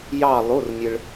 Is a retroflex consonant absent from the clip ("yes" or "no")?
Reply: no